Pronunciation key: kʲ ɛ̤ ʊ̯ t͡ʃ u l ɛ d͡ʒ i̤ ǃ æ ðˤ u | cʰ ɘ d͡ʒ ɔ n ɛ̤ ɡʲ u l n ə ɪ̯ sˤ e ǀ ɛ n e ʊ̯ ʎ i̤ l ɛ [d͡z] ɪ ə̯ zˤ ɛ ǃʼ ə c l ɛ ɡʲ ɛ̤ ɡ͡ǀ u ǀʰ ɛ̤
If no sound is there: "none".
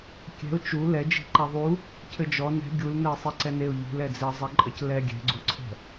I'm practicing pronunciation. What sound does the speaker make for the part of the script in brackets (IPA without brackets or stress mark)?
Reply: d͡z